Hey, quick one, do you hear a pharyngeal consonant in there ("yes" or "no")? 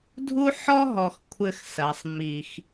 yes